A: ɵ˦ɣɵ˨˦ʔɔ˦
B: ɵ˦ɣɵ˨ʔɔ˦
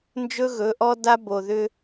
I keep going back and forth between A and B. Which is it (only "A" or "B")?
A